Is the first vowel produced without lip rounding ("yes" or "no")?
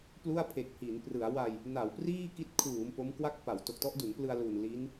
no